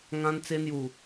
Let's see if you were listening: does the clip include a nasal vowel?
yes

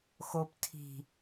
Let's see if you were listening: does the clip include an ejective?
no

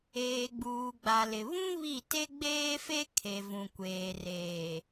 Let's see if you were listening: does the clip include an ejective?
no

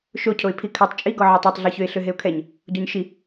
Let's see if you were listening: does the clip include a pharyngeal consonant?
yes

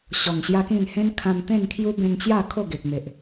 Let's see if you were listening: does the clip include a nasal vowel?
yes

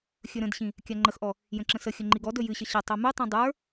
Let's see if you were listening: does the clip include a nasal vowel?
yes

